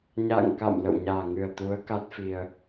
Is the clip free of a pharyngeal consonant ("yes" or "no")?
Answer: yes